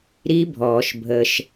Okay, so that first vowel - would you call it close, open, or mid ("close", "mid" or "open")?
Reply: close